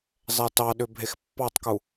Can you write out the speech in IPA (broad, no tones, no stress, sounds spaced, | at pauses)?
zˤ ɛ t ɑ ɗ ʏ bʱ e x pː ɑ tˤ k u